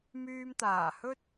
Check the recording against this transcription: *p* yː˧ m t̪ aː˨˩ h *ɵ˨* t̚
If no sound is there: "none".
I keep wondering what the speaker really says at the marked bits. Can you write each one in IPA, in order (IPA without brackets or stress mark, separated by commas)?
m, ɵ˥